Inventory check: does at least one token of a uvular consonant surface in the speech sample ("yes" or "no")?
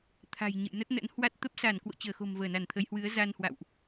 no